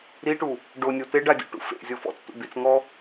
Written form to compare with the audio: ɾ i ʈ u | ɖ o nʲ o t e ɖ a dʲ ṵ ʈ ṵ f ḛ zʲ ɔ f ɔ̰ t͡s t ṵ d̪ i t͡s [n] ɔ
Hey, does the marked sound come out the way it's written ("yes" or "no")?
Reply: no